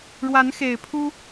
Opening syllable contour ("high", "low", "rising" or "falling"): rising